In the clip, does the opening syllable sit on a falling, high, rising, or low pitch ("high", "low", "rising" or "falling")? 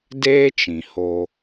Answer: high